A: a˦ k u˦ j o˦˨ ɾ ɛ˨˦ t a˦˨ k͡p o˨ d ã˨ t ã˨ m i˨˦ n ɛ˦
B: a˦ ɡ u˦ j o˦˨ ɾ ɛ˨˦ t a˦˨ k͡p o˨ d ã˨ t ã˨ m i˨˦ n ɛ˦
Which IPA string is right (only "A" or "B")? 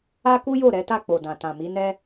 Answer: A